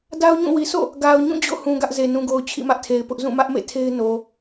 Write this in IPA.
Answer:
da˦ʊ̯ɲũ˦˨wi˨ sʰo̰˦˨ | ɡa˨ʊ̯ɲũ˦˨ d͡ʑo̰˦˨hũ˨ ɡä˦ʔze˨ nũ˨ɡo˨ʊ̯ t͡ɕʰḭ˦˨mä˦ʔtʰe˨ɪ̯pʊ˦ʔ zũ˦˨mä˦ʔmḛ˦˨ tʰe˦ɪ̯no˨

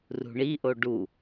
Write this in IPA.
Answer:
rṳɳiʔo ɖu

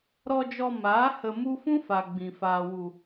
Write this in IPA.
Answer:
ɾɔ˧d͡ʒɔ˧maː˨˦ hə˧mu˦ fũ˦fa˨ ɡ͡bĩ˨ faː˨wu˨

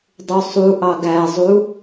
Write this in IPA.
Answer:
dˤusˤuʔɑ ɡæzˤu

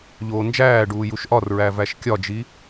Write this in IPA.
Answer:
ʎoːnd͡ʒæːɖuː juʃʔɒrɹæ væʃkʲɒd͡ʒi

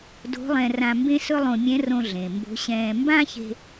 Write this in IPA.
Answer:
do̤˧˥lˠɛ̃˧rã˧ mbẽ˥sɵ˥lˠõ˧ mʲɛ̃˧˥rõ˧ɮẽ˩ mbo̤˧˥ɕɛ̃ː˧ mbã˥çe̤˧

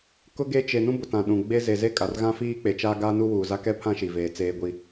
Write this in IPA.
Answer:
kʊ˦ɡe˦ t͡ʃe˨ nũ˦bʊ˨ tã˨ɗũ˨ ɡ͡be˦ ze˨ze˦kʼa˨rɣã˦ fiː˦k͡pe˨t͡ʃaː˦ ɡaː˦nu˦wuː˨ za˦kɛ˦pʰã˦ ʃi˨veː˨ t͡seː˦ɡʷi˦

